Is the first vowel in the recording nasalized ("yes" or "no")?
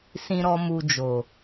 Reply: yes